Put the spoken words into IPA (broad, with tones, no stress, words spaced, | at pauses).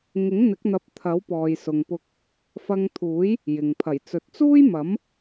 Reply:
ŋɪ˨˥ŋn̪ɪ˨˥k̚n̪ɐ˨˥p̚ t̪ʰɐ˨˥wpɔː˨jsʊ˨ŋpʊ˧k̚ | fɐ˧ŋt̪ʰuː˨˥j | jɪ˨ŋ pʰɐ˨˩jt͡sɵ˨t̚t͡suː˥j mɐ˨˥m